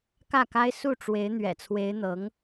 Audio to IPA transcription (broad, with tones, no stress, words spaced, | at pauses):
kä˥˩ka˥ɪ̯ su˥˩ʈ͡ʂwe˧˥ɪ̯ n̪ɥɛ̰˨˩t͡sʰwe˧˥ɪ̯n̪ɤ˧˥ŋ